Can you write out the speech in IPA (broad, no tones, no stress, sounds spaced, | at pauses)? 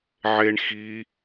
ʕ e ɳ x i